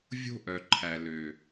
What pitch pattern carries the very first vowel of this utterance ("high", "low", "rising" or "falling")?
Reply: high